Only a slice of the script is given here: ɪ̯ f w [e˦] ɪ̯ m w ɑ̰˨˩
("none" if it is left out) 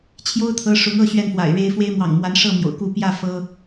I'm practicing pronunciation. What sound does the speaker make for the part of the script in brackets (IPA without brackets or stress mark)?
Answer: e˦